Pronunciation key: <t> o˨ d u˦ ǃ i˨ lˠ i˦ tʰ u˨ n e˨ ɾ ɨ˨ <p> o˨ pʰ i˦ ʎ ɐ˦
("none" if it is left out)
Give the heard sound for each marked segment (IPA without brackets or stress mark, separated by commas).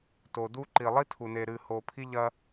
t, h